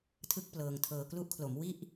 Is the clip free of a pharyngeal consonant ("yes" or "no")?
yes